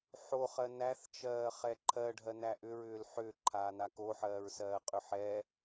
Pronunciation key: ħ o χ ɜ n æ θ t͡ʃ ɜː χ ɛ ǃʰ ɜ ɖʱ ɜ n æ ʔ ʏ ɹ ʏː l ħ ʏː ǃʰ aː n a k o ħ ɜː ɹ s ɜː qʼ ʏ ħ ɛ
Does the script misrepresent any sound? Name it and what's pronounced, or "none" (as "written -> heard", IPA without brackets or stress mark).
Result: none